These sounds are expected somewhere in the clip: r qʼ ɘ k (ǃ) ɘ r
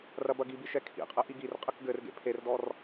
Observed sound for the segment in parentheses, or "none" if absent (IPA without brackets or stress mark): ɡ